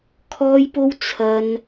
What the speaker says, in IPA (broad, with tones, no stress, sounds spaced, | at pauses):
kʰ ɔː˥ j p o˥ w t͡sʰ ɐ˥ n